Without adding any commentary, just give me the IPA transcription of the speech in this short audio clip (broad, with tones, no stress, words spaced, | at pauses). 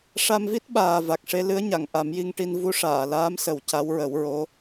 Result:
ʂa˧mvi˦˥t̚ ɓaː˨˩va˨˩k̚ʂe˧ lɨ˧˥ə̯ɲa˨˩˨ŋ ʔa˨˩˦mji˧ŋʈi˧n vu˧˥ʂaː˨˩˨laː˧˥msə˨˩˦w ca˧˥wɹə˨˩˦wɹo˧˥